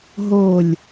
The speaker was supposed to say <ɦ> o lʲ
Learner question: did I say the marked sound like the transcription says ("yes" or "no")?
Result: yes